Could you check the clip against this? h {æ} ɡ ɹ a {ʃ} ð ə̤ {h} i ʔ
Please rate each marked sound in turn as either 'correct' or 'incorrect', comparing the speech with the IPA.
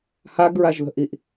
incorrect: a, incorrect: ʒ, incorrect: ʔ

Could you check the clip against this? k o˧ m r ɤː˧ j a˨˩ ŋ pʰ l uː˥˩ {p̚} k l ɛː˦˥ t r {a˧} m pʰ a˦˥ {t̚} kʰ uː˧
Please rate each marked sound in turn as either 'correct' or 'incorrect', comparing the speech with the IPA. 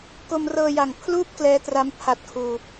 correct, incorrect: a˦˥, correct

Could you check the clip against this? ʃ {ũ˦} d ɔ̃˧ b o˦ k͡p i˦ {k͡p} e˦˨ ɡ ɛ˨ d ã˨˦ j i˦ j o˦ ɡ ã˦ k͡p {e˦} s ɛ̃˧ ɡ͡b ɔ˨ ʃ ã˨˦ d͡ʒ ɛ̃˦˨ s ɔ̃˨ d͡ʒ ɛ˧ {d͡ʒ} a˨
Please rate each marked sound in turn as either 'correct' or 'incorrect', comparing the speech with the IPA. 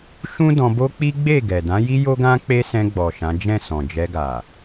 correct, incorrect: ɡ͡b, correct, incorrect: ɡ

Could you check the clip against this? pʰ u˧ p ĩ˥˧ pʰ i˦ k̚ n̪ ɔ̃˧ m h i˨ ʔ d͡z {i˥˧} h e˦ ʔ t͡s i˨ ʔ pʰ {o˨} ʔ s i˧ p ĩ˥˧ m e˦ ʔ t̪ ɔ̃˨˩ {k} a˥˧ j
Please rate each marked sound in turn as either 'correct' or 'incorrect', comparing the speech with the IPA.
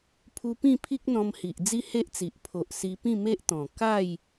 incorrect: i˦, correct, correct

